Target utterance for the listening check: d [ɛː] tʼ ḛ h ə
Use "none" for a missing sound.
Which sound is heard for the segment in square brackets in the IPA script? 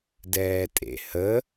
ɛː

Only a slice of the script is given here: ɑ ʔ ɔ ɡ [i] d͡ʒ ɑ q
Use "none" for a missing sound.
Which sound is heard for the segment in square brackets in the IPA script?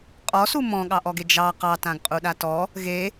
e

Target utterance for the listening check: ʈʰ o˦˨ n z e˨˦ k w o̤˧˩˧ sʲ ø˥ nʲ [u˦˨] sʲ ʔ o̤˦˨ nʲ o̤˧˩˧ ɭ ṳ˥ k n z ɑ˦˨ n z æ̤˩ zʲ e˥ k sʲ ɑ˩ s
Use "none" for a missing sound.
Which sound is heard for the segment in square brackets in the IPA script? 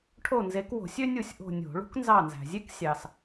u˦˨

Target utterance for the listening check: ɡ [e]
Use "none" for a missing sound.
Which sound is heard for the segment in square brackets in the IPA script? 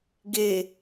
e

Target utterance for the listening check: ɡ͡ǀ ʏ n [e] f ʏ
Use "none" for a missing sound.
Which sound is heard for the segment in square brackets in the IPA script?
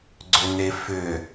e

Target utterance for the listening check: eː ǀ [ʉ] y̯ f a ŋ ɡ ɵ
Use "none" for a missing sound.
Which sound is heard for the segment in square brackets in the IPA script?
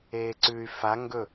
ʉ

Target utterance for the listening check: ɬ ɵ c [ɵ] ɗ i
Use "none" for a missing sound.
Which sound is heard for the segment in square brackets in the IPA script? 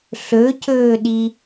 ɵː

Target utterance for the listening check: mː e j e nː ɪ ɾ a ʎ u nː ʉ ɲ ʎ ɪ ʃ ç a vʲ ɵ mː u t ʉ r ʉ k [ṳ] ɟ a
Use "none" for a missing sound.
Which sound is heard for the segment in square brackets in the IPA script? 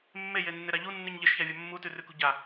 ṳ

